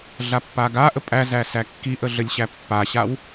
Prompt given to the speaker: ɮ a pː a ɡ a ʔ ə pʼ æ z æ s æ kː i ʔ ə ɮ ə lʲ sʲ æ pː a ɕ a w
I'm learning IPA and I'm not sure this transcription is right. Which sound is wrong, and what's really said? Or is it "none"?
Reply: sʲ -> ɕ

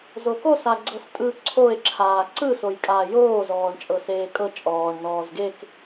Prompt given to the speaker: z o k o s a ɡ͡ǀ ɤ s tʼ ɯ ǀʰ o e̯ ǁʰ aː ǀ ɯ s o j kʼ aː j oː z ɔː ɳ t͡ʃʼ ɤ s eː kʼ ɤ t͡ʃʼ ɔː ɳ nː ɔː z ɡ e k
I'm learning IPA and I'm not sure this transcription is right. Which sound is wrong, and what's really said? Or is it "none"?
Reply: nː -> n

